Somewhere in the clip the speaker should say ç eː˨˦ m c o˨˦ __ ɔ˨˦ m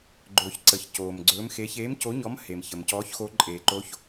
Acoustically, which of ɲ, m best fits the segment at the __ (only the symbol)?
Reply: ɲ